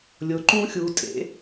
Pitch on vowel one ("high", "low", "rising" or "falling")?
rising